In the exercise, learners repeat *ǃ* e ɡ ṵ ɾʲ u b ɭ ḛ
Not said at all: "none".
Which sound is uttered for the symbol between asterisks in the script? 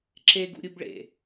ǁ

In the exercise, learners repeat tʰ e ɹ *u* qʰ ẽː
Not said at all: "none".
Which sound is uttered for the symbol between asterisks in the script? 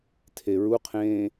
u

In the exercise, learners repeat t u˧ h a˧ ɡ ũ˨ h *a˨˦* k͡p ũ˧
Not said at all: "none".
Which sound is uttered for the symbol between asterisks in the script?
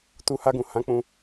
ã˨˦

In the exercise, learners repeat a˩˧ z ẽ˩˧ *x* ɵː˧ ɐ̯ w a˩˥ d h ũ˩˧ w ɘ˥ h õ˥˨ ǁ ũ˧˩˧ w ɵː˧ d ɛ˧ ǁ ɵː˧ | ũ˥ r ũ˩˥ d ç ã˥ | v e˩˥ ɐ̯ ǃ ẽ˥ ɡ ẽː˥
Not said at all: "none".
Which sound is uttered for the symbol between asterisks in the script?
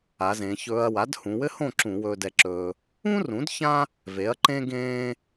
ç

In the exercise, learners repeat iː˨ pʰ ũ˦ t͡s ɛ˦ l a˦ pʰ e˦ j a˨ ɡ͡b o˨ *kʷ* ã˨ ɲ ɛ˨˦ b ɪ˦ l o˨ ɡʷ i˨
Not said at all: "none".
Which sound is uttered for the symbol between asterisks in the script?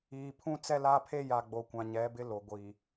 kʷ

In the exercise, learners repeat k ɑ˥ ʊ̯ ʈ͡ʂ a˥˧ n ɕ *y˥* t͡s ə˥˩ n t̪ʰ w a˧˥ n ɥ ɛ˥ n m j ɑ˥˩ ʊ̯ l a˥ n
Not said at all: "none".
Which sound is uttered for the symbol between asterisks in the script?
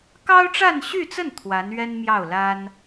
y˥˧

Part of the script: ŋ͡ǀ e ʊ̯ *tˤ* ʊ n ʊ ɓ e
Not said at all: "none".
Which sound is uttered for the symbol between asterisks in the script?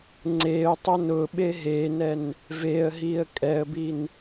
tˤ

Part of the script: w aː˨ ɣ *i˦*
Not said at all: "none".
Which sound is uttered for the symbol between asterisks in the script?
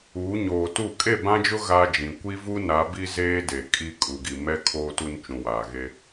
e˦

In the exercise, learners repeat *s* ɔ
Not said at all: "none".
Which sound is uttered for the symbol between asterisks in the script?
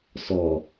s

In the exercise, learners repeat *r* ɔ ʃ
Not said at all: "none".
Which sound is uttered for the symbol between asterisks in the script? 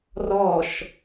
r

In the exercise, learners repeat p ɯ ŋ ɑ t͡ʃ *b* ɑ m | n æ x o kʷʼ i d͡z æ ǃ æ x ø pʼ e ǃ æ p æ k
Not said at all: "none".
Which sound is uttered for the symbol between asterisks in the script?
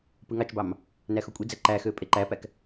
b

